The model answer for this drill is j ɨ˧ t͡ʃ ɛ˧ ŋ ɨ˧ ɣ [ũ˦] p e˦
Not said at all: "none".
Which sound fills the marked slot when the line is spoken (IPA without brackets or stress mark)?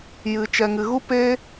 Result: u˦